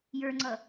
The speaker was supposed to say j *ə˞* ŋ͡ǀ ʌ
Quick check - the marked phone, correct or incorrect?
correct